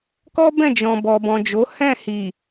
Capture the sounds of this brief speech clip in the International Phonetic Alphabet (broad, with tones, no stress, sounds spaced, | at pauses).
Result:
k ɔ˦ b ɛ̃˦˨ d͡ʒ ɔ̃˨ b ɔ˨ b ɔ̃˨ d͡ʒ o˨˦ h ɛ̃˦˨ h i˨